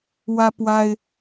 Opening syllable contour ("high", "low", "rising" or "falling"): high